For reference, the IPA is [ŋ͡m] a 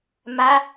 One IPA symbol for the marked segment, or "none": m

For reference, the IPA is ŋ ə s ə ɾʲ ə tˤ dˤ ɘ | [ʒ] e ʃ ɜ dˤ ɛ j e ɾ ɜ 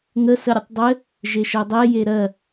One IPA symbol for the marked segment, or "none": ʒ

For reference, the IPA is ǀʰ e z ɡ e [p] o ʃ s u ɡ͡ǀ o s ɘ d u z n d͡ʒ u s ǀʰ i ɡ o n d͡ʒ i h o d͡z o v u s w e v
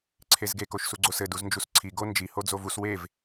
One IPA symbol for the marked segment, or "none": k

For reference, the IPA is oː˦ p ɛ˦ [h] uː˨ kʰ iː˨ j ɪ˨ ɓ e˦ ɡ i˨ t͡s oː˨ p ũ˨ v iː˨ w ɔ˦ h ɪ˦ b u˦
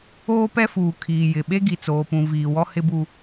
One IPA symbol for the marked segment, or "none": f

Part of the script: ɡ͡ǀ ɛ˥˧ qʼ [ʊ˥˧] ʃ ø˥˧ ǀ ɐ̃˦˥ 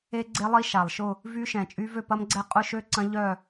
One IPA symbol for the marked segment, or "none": ʊ˥˧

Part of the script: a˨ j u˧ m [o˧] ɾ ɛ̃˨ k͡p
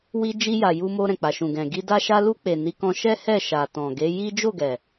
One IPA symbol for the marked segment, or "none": o˧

